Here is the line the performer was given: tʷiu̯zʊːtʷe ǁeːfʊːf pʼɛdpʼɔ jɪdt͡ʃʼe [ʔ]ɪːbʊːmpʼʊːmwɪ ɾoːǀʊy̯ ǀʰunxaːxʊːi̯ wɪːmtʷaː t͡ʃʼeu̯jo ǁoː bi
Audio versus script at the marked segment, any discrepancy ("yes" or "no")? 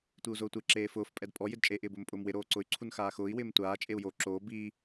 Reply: no